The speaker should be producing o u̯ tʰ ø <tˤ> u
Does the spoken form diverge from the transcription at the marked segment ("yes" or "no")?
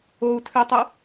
no